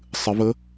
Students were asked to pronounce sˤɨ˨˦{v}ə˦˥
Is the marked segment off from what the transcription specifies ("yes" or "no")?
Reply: no